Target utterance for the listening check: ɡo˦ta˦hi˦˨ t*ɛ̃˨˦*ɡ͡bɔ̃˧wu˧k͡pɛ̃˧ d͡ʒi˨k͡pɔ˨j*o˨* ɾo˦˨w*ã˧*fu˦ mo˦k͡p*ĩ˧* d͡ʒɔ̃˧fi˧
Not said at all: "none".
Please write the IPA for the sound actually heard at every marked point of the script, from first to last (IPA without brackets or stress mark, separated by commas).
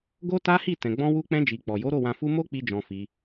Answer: ɛ̃˨, o˨˦, ã˧, i˧